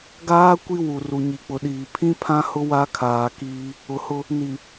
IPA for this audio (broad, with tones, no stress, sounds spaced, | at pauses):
ɡ aː˦ kʷ i˦ w u˨ r u˨ ɲ i˨ k͡p ʊ˨ ɗ iː˨ pʰ ĩ˦ pʰ ã˦ h ʊ˦ w a˦ kʰ aː˨ k iː˦ | ʊ˨ h ʊ˦ | n i˨